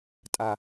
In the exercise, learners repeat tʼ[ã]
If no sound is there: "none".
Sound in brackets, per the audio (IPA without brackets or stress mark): a